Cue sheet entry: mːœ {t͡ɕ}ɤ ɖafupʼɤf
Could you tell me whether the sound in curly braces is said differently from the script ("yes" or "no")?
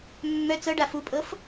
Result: yes